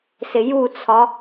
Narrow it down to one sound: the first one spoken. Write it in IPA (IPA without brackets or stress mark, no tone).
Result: s